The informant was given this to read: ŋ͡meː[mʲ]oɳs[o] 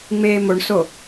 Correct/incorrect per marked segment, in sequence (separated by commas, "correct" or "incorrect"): incorrect, correct